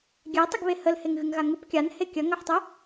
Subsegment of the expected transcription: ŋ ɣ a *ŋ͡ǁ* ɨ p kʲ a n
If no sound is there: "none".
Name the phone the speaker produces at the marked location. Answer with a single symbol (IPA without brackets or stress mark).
ŋ